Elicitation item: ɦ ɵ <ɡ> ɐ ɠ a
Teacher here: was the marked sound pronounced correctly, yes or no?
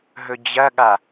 no